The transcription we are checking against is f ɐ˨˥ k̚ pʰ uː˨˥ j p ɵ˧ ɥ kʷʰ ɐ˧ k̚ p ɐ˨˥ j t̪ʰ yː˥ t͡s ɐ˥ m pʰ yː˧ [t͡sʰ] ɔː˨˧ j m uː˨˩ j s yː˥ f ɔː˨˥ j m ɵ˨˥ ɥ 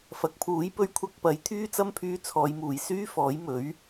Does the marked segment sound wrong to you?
no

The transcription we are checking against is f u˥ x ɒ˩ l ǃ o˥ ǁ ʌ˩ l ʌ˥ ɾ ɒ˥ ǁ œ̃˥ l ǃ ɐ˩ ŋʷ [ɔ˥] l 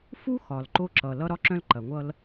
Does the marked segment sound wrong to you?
yes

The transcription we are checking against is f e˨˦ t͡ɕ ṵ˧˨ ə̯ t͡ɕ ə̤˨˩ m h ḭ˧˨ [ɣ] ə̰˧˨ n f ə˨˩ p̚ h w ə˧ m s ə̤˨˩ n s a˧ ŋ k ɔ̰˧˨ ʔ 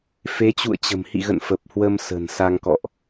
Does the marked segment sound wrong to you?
no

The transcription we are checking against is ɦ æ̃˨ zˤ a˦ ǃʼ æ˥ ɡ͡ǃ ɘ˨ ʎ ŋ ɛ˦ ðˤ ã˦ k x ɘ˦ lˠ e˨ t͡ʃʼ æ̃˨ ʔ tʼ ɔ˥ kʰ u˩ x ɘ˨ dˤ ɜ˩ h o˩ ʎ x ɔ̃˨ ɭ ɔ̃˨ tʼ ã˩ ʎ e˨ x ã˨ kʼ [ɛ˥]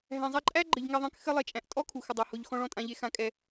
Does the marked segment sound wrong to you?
yes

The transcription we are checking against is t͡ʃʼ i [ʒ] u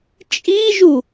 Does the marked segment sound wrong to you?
no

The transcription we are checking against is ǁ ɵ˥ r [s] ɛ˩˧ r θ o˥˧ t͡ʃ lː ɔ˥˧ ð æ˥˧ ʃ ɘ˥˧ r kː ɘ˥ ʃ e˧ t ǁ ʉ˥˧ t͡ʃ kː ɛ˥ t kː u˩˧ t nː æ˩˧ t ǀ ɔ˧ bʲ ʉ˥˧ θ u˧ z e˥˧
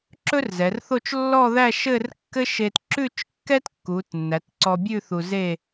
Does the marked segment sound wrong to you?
yes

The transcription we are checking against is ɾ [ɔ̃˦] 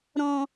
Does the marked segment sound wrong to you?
no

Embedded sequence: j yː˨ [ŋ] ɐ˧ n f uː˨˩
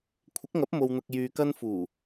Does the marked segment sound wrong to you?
yes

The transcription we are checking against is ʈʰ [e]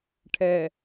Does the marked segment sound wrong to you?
yes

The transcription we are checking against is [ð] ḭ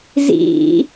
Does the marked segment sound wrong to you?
yes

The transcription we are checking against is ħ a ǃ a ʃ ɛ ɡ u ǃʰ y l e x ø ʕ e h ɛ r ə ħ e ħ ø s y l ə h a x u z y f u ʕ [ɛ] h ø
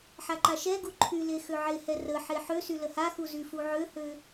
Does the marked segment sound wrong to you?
yes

